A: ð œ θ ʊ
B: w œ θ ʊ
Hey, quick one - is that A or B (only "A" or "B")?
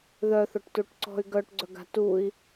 A